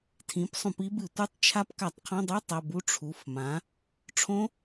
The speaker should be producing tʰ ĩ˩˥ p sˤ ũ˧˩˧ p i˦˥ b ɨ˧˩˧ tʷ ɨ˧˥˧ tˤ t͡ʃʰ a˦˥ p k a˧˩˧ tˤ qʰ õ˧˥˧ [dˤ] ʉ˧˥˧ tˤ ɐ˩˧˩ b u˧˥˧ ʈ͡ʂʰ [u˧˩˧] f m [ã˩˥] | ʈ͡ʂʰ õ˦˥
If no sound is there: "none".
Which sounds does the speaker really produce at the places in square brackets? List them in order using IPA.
dˤ, u˩˧˩, ã˩˥

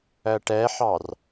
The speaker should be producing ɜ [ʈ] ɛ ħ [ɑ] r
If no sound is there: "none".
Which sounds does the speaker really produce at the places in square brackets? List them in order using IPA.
ʈ, ɑ

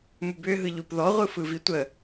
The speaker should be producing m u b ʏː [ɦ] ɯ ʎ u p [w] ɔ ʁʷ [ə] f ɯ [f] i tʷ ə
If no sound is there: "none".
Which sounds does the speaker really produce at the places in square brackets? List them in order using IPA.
ɦ, ð, ɯ, v

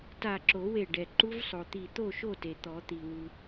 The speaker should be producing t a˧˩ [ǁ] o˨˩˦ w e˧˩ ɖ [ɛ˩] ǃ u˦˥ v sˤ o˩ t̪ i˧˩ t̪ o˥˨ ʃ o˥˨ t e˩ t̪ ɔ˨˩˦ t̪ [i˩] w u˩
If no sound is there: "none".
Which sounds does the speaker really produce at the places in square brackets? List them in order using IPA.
ǁ, ɛ˩, i˩

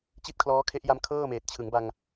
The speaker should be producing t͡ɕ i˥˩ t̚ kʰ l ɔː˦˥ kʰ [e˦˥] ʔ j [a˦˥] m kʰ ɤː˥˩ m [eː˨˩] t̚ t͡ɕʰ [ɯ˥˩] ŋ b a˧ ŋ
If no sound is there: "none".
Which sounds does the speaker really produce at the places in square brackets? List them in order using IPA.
e˦˥, a˦˥, eː˨˩, ɯ˩˦

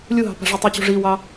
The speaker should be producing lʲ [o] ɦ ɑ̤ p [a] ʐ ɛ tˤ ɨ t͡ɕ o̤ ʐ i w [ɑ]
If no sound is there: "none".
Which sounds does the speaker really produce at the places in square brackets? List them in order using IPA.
u, a̤, ɑ

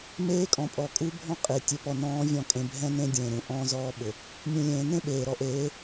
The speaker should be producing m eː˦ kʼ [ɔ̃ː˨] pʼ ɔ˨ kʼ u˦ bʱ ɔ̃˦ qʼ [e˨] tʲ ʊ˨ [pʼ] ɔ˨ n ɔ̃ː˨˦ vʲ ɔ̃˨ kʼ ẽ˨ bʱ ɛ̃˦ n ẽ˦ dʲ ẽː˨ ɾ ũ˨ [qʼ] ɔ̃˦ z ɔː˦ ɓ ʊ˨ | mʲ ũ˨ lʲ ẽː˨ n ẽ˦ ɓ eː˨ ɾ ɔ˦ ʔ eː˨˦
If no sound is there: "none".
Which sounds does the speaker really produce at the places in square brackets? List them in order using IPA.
ɔ̃˨, e˨, p, ʔ

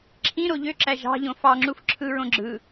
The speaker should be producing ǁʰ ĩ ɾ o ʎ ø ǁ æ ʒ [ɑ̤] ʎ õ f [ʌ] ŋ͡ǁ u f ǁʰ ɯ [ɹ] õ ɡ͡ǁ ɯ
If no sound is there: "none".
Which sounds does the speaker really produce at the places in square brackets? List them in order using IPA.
ɑ̤, ɑ, ɹ

